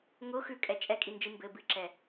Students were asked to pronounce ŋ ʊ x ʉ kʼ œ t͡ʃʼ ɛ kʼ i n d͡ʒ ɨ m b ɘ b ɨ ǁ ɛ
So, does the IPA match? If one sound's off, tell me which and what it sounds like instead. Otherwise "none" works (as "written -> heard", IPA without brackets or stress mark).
œ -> ɛ